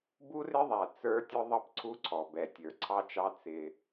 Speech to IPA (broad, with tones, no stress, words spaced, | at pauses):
bu˦rɪ˦ðˤæ˨ t͡sə˞˦tʲʊ˦ ðˤʌ˦pǀʰu˦ǀʰɔ˨ bɛ˨tʲə˞˨ǀʰɑ˦t͡ʃɑ˦ t͡sɪ˦